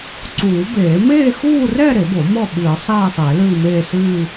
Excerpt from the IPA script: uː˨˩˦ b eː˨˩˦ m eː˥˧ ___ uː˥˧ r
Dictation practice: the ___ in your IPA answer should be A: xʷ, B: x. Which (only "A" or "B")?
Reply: B